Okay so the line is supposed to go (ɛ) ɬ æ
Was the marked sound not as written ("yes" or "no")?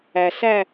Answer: yes